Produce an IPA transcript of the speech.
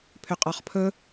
pʰ ʏ qʼ ɔ χ pʰ ɵ

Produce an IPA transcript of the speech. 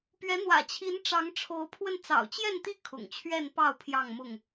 p ɥ ɛ˨˦ n̪ w ä̰˨˩ t͡ɕʰ i˨˦ n ʈ͡ʂ ɑ˨˦ ŋ ʈ͡ʂʰ o˨˦ ʊ̯ pʰ w ə˧ n t͡s ɑ̰˨˩ ʊ̯ t͡ɕ j ɛ˥˨ n t̪ i˥˨ kʰ ʊ̰˨˩ ŋ t͡ɕʰ ɥ ɛ˥˨ n p ɑ˥˨ ʊ̯ pʰ j ɑ˥˨ ŋ m ʊ˥˨ ŋ

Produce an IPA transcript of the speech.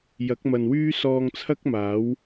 j ɐ˨˥ k̚ m ɐ˨ n w yː˥ s ɔː˧ ŋ t͡sʰ ɐ˥ k̚ m aː˨˥ w

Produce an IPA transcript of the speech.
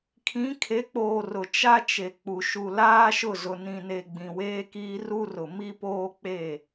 kʰ ĩ˨˦ kʰ e˨˦ k͡p oː˨ r ʊ˨ t͡ʃ a˦ t͡ʃ e˨ k͡p u˨ ʃ u˨ l aː˦ ʃ ʊ˦˨ z ʊ˨ n ĩ˨ n e˨ ɡ͡b ĩ˨ w eː˦ k iː˦ r u˦ r ʊ˨ m i˦ p oː˦ k͡p e˦˨

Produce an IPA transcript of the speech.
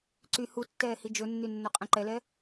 ǀ y h u tː ɛː h i d͡ʒ ɵ nː y nː ɵ qʼ ɛ̃ ǃ ɛ l ɛ

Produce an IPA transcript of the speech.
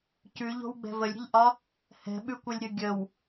c ʉ ʎ o̤ w ɡ͡b ɛ̤ v ə lʲ ɾʲ ə̤ ʎ ʔ ɒ | h ɛ̤ ɓ ʉ kʷ ɤ lʲ ɾʲ ɤ ɡʲ ə w

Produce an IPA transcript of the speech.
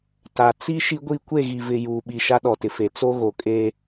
t a˨ t͡s i˦ ʃ i˦ ɡʷ i˦˨ kʷ e˦˨ ɣ i˨ v ɪ˨ j uː˨ ɓ i˨ ʃ a˦ ɗ ɔ˨ t ɪ˨ f e˨ t͡s o˦ ɣ o˨ kʼ e˦

